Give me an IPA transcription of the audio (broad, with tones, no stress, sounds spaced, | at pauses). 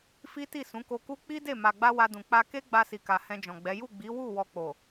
f i˦ t i˦˨ s ũ˨˦ k o˧ k u˦ k͡p i˦ d e˦˨ m a˨ ɡ͡b a˧ w a˧ d ũ˨ k͡p a˧ k e˦ ɡ͡b a˧ s i˨ k a˨ h ɛ̃˧ d͡ʒ ɔ̃˨ ɡ͡b ɛ˨˦ j u˦˨ ɡ͡b i˨˦ w u˦˨ w ɔ˧ k͡p o˨